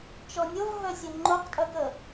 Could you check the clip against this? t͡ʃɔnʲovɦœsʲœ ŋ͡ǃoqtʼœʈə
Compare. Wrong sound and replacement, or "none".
ʈ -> k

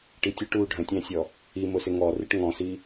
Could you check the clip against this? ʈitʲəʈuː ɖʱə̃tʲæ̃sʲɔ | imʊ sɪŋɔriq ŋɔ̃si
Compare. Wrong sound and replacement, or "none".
q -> ʈ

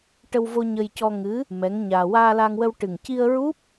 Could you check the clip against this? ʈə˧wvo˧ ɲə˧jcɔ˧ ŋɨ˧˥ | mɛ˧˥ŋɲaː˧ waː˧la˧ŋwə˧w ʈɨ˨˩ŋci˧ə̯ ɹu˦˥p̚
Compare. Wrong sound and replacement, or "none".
none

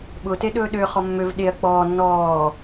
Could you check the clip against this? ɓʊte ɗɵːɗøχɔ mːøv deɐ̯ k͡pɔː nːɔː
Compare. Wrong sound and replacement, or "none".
d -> ɗ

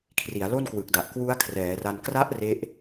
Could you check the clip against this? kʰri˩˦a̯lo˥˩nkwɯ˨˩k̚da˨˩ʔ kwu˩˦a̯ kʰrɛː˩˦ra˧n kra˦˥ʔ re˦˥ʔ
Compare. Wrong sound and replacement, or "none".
u˩˦ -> u˦˥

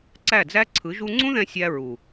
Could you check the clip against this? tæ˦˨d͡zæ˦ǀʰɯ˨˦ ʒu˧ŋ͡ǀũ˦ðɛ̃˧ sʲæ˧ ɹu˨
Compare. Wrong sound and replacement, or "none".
t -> ǀ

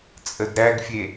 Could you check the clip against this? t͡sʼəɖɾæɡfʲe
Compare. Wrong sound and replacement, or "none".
ɖ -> d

